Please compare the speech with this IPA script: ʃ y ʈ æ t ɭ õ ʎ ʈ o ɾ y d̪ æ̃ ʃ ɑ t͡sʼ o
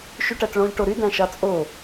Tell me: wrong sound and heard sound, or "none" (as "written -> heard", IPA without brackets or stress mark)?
none